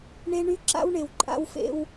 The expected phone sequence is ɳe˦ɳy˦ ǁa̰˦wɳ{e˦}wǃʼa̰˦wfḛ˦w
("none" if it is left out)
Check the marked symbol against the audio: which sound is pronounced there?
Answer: e˨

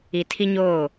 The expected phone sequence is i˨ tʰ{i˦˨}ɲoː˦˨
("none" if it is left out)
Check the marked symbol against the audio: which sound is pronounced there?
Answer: i˦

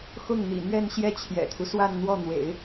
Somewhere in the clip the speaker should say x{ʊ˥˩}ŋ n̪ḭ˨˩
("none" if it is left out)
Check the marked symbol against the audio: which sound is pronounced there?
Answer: ʊ˥˩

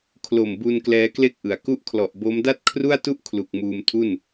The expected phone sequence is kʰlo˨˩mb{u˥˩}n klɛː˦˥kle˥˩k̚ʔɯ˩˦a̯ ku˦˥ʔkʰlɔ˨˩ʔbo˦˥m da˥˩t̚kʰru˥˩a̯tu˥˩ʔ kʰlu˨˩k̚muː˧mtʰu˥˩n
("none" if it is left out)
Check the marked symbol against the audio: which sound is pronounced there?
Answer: u˧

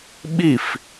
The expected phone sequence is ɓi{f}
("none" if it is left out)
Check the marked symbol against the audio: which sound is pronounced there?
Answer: f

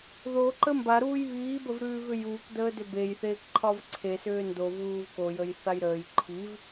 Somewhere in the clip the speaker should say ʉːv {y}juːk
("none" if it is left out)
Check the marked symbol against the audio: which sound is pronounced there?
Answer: ʏ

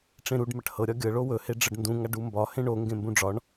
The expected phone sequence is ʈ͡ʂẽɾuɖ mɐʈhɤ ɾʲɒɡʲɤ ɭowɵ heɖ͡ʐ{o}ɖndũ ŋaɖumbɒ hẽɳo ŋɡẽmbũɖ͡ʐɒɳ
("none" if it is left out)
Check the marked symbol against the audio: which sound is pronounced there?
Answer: ɤ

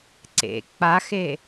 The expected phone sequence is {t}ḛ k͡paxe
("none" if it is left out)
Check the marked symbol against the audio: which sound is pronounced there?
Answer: ǀ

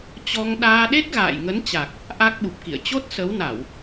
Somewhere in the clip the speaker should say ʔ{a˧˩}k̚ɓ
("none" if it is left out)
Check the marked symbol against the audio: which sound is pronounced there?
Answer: a˦˥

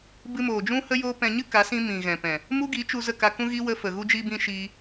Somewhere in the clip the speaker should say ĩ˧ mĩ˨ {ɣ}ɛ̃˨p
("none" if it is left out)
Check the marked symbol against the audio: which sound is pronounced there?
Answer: ɣ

